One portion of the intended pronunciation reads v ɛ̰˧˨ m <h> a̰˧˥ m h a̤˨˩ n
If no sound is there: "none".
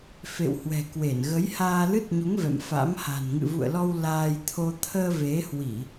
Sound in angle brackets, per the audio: f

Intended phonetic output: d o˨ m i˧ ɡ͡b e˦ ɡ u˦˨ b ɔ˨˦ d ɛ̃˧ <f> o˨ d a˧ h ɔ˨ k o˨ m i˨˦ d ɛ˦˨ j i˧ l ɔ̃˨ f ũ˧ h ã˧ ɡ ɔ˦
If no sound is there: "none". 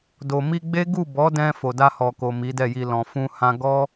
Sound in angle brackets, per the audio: f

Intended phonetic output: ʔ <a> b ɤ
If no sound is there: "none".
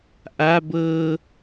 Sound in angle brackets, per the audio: a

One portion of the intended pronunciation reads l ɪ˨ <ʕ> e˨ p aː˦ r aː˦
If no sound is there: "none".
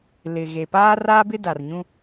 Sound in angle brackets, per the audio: ɣ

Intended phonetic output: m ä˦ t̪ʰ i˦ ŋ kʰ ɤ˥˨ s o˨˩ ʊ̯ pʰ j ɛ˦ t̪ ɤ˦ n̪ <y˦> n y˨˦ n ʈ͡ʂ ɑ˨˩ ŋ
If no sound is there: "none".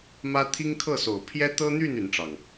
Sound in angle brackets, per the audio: y˥˨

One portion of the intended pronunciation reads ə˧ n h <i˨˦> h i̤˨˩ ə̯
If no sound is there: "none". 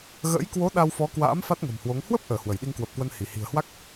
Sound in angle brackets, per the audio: i˧˩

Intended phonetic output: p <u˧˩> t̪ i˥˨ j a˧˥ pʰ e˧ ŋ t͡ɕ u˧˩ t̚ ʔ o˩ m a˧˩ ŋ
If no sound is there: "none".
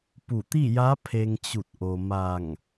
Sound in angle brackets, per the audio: u˧˩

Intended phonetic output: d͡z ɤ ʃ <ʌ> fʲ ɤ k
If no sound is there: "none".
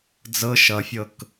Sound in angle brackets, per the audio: ʌ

